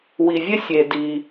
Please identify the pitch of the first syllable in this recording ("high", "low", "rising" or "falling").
low